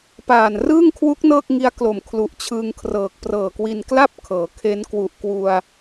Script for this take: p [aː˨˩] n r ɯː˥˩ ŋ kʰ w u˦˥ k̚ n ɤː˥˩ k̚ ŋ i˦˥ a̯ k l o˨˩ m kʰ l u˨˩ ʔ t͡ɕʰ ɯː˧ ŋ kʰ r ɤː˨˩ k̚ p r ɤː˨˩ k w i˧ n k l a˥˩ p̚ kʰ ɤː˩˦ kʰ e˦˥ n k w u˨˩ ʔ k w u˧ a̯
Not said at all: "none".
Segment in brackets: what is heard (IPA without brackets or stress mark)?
aː˨˩